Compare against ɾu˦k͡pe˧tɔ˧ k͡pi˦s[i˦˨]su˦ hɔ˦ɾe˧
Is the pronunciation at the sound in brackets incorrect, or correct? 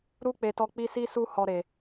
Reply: incorrect